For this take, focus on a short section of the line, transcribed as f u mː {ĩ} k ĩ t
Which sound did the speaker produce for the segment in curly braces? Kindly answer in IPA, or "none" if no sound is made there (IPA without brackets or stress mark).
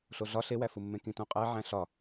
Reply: ẽ